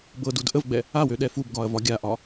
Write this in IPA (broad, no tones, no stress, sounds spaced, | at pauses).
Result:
b ɤ d u d ʔ ə v ɡ͡b ɛ | a w ø ɗ ɛ f u b ɡ ɒ ɐ̯ v ɒ ɡʲ a ʔ ɒ